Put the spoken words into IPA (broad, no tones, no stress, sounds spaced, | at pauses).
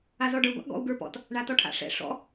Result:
a z ɔ ɖ ə˞ ɡʷ a̰ ʔ ɡ ɔ̰ u̯ ɡ ə˞ p ɔ̰ t | ɳ a t ɔ ʈʰ a̰ ʂ ɛ̰ ʂ ɔ̰